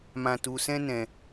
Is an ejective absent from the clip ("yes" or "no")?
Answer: yes